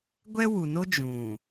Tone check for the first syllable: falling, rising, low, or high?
high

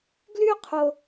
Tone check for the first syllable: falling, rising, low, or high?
high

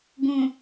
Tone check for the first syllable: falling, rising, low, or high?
low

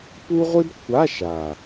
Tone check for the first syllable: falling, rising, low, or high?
high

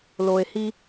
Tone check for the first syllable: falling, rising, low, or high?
low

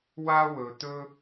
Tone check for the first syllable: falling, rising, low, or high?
high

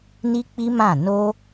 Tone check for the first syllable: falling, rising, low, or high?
high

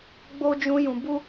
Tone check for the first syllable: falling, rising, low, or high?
high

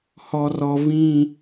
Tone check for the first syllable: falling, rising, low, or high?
high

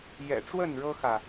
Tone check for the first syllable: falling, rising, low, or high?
low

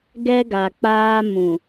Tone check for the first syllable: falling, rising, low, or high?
high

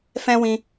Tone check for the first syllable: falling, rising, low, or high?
high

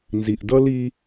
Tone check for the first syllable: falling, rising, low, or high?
low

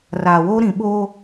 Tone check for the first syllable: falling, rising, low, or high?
low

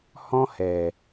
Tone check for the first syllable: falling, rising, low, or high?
high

